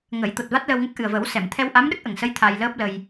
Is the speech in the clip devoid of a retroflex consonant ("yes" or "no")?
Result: yes